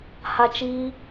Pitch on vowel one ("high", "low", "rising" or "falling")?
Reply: high